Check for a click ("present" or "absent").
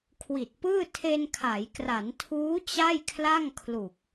absent